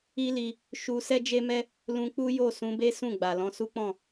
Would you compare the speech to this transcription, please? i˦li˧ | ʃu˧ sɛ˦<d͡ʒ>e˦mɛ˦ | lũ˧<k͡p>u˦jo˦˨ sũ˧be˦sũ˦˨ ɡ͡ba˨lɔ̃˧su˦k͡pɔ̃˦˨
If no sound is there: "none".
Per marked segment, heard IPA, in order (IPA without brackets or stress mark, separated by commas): d͡ʒ, k͡p